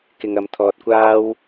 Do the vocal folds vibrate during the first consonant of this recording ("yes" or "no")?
no